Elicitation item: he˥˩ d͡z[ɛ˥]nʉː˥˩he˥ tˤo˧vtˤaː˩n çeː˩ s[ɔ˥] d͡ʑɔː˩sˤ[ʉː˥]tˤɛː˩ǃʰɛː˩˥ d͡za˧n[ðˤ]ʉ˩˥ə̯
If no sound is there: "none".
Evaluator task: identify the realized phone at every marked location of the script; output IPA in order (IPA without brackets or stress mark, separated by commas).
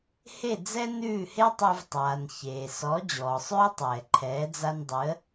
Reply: ɛ˥, ɔ˩˥, ʉː˥, dˤ